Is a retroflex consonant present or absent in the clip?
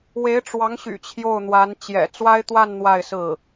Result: present